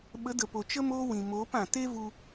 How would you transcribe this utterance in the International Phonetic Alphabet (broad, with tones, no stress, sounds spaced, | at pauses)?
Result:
ɓ ə˨˦ d ə˨ p o˨ t͡ʃ ə˦ m oː˦ w ĩ˨ m oː˨˦ p ã˨ t e˦ v u˧